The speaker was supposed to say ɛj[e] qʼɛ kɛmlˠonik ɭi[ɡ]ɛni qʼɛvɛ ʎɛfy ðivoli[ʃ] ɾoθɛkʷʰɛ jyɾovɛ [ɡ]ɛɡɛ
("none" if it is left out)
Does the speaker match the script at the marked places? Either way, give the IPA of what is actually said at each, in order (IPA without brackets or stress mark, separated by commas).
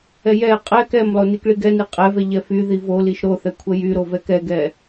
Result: ɛ, ɡ, ʃ, k